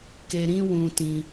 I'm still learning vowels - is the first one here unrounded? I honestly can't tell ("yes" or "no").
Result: yes